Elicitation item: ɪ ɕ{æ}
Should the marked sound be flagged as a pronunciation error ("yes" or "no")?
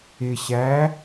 no